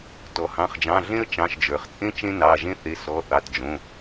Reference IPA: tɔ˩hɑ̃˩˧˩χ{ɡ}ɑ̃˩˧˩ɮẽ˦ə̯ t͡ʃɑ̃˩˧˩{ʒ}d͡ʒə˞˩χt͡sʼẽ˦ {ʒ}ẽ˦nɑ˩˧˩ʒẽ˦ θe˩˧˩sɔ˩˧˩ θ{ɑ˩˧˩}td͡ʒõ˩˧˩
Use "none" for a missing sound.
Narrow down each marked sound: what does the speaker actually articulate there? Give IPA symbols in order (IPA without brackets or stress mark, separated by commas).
d͡ʒ, ʃ, t͡ʃ, ɑ˩˧˩